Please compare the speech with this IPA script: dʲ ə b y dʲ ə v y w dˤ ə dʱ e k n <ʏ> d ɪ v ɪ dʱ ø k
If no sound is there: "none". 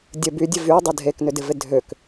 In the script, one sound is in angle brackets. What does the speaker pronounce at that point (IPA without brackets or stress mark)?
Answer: ʏ